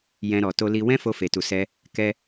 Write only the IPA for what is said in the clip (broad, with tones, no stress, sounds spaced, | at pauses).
j ɛ̃˧ ɾ ɔ˨ t o˧ l i˧ w ɛ̃˦ f o˧ f e˨ t u˨ s ɛ˧ | k ɛ˧